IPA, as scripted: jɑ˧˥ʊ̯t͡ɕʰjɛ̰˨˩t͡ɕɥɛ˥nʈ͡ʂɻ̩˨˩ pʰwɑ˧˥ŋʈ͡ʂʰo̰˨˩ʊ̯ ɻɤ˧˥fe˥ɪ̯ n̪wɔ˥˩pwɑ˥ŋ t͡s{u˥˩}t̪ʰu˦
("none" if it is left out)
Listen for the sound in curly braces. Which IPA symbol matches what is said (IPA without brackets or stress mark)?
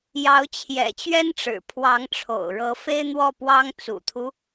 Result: ṵ˨˩